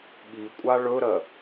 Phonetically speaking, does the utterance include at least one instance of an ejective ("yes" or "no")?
yes